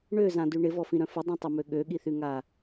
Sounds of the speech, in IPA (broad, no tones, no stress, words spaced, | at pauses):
ɳøzãdy ɳɪvɔfĩɾœ̃ fədˤœ̃tˤʊmø ɠøɠiθyŋa